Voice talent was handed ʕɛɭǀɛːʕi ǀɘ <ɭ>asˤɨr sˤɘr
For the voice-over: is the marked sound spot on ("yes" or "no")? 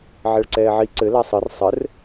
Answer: no